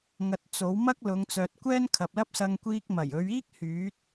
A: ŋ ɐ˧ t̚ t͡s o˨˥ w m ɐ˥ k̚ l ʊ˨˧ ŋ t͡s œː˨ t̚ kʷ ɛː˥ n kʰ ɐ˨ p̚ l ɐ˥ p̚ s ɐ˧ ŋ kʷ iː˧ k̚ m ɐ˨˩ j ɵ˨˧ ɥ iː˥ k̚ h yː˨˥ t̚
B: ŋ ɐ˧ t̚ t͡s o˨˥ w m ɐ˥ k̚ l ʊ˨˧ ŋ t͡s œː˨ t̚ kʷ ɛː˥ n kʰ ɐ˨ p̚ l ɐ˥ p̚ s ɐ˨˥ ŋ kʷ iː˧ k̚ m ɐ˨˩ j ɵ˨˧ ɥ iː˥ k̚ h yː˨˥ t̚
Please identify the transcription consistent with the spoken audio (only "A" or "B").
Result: A